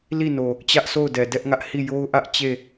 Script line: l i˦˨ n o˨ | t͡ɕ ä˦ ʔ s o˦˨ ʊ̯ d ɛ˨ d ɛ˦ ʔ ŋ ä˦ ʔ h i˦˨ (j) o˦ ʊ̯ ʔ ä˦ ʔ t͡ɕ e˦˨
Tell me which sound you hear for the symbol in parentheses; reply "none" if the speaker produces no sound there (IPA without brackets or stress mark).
j